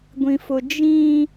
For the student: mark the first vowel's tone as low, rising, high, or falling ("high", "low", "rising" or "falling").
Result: low